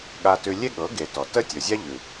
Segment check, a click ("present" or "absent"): absent